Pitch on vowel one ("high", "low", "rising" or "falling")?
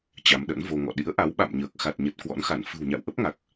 rising